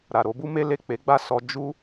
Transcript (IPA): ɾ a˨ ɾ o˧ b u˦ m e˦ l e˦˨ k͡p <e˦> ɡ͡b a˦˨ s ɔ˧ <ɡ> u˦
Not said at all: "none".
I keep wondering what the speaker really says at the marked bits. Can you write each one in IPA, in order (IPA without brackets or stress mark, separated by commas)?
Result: e˨˦, d͡ʒ